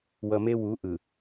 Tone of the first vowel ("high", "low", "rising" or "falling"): low